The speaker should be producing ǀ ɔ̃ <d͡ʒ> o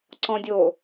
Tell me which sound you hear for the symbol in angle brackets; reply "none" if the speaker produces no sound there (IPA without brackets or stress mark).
dʲ